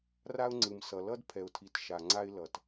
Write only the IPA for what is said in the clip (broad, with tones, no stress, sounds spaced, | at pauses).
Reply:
r a˦ ʊ̯ ŋ͡ǀ ɯ˨ m s ʌ˨ l ʌ˦ d pʰ ɛ˨ ʊ̯ tʰ i˨ t ʃ a˨ ŋ͡ǀ a˦ ɪ̯ l ʌ˨ t